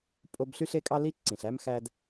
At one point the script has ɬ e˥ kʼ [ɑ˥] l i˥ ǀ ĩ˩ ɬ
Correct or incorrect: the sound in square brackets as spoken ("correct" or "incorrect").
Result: correct